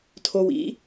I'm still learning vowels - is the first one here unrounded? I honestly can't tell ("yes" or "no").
no